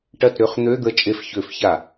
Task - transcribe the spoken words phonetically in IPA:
ʈɐ˦˨tɾʏ˧˥˧χn̪ø˧˥˧d̪ə˦˨ t͡ʃʼe˦˨fçø˧˩˧fça˧˩˧

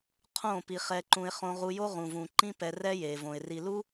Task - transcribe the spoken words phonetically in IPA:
qʰõ˦˨ pi˧χɛ˧ǃũ˧ɪ̯ χõ˧ʁu˧jo˦ ʁũ˨vũ˨ǃĩ˦ pɛ˧rɛ˦je˨võ˨ɪ̯ ri˨lu˦

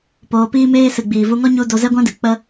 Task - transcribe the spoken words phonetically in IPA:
poː˧piː˦meː˦ sɨ˨ɡ͡biː˨vu˧ŋɔ˦ ɲu˦ do˧zɛ˦ɡʷã˦dɨ˨ k͡pə˧

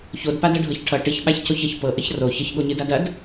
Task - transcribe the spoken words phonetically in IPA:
çodpadʌɖʱɤç ʈʰʌ ʈɨçɓaçcoç əç pɤʔəç ro çəçɠoɲɨdad ɐd

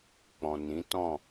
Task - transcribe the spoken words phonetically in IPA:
k͡pɔ̃˨nĩ˨˦tɔ̃˦˨

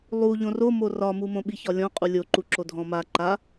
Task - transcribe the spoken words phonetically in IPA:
lˠu ʎõromo rɒmumõ ɓiçɒlʲɔ̃qʼu lʲoǃuǁo dʱɔ̃ma ǃa

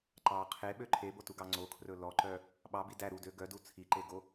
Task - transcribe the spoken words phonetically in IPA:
ǃɑ qʰeɓø ǃʰebotuɡɑ ŋ͡ǀokʰrɵ lɔǃœ | ɓɑbi dæ ɾudø ɡœdu t͡sʰiǃeɡo

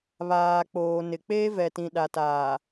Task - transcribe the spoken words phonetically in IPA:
βaː˨k͡poː˨ nɪ˨ k͡peː˦vɛ˨tĩ˨ ɗa˨taː˨

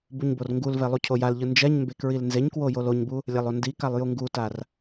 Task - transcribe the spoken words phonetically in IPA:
buɲborŋɡulvɛ lˠucʰojalʎɯ nd͡ʒɛɲmbe kɹilnzeɲkwo joloɲbu | lʲalˠondikalˠ juŋɡutar

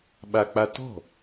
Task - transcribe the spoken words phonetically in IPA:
ɓak͡patɔ̤

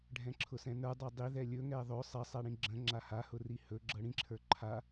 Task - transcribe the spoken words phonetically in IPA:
ɖʱɛ̃ǁʰʊsɛ̃nə˞ dˤadˤiðɛ lʲɵ ŋɛðˤɵ sˤɛsˤaɽĩ ɡ͡ǁə̃ ŋ͡ǁahahʊri hɵɡ͡ǁɤ ɽĩǁʰə˞ ǃʰa

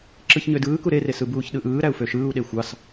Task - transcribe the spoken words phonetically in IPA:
ǁɯçɲødɯːku ɾeresɯ buːçɗɯʔɯː ɾæu̯føʃɯːu̯ɗe xʷɑs

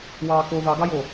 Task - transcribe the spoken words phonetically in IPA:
wɑːko ðɑɡɑjo

